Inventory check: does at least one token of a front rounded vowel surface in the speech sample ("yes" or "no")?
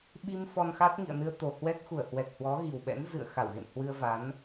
no